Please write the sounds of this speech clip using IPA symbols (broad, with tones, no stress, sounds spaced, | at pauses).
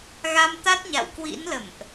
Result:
ɣ a˧ m t̪ a˦˥ t̚ ɲ a̰˧˨ w k w ḭ˧˥ n l ə̰˧˨ m ʔ